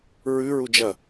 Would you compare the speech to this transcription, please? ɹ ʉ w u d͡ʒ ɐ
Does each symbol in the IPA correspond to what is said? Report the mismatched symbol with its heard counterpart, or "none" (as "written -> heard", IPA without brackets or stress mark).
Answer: w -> ɹ